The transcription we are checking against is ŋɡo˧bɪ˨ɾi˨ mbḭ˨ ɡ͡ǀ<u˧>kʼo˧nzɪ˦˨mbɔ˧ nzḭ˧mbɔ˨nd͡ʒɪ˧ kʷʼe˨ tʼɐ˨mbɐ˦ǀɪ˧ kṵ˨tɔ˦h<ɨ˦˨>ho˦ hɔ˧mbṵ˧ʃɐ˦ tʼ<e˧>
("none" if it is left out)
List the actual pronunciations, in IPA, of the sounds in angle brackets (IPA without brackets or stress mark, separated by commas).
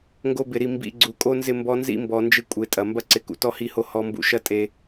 u˨, i˦˨, e˧